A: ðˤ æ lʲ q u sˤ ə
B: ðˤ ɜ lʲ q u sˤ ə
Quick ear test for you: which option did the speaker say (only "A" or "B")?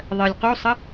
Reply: B